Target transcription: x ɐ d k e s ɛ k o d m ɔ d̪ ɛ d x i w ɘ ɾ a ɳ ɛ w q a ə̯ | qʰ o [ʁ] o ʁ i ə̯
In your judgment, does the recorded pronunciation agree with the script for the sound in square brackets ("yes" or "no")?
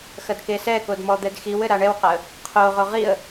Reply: yes